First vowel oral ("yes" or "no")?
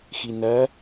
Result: yes